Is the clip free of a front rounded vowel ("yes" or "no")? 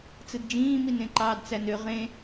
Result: no